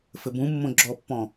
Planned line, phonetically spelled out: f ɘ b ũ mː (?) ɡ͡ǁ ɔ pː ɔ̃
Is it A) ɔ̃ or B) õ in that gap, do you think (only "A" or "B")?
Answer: B